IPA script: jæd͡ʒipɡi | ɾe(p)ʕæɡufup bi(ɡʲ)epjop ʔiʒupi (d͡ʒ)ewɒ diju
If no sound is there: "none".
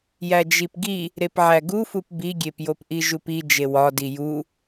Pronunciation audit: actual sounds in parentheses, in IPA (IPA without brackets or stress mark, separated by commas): p, ɡʲ, d͡ʒ